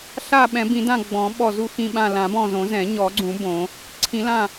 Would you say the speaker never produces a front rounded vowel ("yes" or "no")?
yes